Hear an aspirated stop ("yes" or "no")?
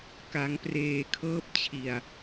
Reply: yes